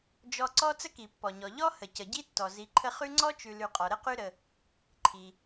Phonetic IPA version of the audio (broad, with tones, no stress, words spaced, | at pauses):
d͡ʒɔ˨ǀɔ˦ t͡sə˦ki˩pːɔ˩ɲɔ˩ ʎɔ˥ hə˩cə˩ɟi˦tːɔ˩ zi˨ǃʰə˦χʉ˥ ŋ͡ǀɔ˥t͡ʃʉ˨ lʉ˨qʼɔ˩ ɾə˥qʉ˦ɾə˨ | ǃʰi˩